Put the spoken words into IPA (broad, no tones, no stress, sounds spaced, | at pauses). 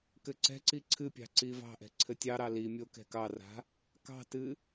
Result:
k ɘ ǀ ɛ̤ ǀ i ǀʰ ɨ pʲ ɑ̤ ǀ i v ɑ̤ ʔ ɛ̤ ǀʰ ɘ tʲ ɑ ɾ ɑ l i mʲ o k ɛ̤ k ɑ r a̤ | k ɑ̤ t ɨ